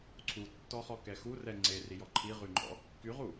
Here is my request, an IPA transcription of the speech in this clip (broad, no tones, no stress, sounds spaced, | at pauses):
ǀʰ u tː ɔ χ ɔ k ɛ x u r ɛ ŋ͡ǀ e r i j ɔ ǃʰ i ʁ y ŋ͡ǃ ɔ̰ | k y ʁ u